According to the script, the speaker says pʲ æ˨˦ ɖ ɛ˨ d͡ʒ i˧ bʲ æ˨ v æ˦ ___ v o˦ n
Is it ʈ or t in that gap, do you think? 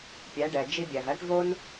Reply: ʈ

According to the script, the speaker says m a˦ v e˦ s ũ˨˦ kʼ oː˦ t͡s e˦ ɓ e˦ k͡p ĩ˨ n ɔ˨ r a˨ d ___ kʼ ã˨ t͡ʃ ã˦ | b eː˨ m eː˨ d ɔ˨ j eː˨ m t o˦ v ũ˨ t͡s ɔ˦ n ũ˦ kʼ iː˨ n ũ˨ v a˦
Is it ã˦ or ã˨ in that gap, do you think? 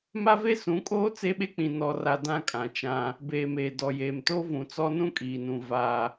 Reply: ã˦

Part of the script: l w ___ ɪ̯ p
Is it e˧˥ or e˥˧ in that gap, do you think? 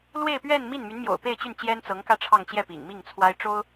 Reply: e˥˧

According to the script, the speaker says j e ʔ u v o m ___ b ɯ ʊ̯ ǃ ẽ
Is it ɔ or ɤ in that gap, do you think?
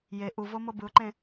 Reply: ɤ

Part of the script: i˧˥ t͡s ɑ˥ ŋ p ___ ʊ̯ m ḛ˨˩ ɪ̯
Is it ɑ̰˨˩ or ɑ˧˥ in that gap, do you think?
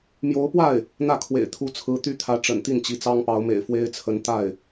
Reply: ɑ˧˥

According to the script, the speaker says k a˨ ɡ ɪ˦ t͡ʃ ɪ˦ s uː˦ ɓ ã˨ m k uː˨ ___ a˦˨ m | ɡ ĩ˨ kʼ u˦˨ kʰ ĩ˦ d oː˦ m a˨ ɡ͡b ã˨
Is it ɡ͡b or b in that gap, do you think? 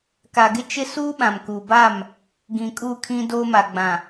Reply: b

